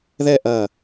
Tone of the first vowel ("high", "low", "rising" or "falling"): falling